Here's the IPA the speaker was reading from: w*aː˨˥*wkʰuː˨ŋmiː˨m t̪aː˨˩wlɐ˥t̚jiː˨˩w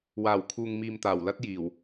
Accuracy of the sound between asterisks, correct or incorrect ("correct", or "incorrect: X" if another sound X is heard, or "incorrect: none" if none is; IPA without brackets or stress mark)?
incorrect: aː˨˩